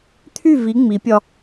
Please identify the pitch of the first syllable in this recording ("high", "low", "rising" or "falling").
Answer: falling